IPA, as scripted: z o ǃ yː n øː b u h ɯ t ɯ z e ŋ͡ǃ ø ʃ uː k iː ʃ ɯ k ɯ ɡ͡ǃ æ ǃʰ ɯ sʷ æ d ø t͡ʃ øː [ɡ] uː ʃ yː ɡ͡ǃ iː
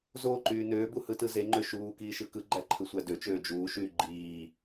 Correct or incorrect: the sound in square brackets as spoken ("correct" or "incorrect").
incorrect